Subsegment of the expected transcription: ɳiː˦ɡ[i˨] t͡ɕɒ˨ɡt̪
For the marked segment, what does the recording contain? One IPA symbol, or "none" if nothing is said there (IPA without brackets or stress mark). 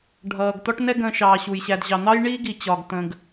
i˨